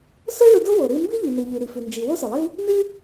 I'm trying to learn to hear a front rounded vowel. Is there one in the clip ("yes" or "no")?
no